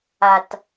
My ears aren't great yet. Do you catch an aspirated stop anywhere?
no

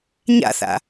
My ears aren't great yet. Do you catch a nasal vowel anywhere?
no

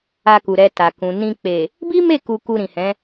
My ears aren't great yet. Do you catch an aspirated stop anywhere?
no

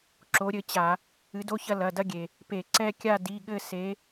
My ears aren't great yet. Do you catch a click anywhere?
yes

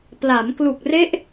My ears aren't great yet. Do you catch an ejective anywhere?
no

